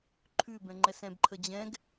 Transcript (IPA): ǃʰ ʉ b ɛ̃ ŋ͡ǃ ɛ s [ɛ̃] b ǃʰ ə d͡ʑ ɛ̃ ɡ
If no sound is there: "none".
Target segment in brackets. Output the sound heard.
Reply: ɛ̃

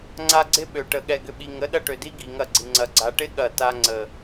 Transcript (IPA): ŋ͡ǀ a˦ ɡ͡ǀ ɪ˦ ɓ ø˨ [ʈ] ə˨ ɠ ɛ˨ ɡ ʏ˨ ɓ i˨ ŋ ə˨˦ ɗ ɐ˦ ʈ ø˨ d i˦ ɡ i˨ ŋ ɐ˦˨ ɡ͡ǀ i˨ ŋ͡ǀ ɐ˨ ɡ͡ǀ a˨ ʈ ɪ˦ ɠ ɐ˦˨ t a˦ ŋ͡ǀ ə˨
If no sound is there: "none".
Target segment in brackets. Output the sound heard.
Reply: ʈ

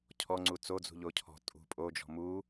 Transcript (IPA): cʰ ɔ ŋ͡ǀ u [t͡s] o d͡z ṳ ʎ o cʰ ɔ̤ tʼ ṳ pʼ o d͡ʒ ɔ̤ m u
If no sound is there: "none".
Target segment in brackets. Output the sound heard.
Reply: t͡s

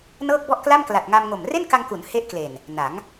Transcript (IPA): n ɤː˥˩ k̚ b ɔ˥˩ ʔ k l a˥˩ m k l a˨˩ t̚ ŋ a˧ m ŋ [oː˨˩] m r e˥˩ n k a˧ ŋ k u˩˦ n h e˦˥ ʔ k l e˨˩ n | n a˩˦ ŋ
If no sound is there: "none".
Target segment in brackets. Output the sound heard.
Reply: o˨˩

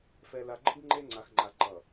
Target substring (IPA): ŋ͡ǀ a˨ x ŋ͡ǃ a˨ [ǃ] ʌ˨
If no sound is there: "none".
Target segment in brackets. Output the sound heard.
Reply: ǃ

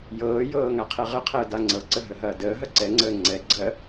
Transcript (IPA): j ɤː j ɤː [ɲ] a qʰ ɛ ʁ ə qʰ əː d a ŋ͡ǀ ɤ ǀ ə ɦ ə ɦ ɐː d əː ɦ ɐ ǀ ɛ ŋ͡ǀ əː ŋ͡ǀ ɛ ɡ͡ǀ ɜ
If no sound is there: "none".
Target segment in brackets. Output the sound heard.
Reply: ŋ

